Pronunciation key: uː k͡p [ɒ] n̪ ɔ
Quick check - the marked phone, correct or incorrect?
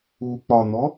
correct